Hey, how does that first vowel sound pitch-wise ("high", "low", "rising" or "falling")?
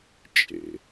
low